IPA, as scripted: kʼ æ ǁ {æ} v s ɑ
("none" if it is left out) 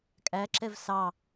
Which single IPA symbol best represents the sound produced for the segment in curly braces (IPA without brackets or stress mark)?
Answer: ɛ